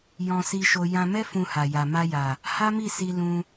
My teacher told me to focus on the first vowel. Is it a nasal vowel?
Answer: yes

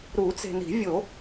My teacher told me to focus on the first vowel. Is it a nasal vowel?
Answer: no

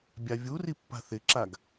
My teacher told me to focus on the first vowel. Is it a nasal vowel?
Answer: no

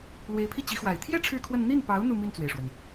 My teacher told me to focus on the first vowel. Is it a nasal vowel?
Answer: no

